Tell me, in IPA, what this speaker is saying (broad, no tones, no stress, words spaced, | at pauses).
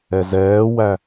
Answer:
ɛzɛːwæ